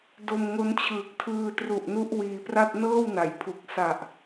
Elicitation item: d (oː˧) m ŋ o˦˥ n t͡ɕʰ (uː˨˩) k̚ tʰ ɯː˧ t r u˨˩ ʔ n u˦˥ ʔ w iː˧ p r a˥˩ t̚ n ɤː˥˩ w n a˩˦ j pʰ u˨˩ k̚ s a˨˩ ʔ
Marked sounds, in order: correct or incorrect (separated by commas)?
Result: incorrect, incorrect